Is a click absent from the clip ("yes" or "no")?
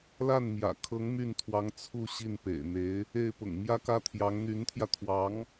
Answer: yes